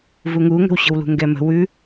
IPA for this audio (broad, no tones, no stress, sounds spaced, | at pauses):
v u ŋ u ŋ ə̤ w ɕ ə̤ w l ṳ ŋ ɡ ɛ m ə̤ w ʉ